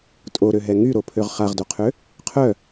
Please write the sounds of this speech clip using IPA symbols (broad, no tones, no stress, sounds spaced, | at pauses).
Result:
tʼ o ɾ ø ɦ ɛ ŋ y ɾ o pʰ ø ʁ χ a ʁ d o qʰ ø | qʰ œ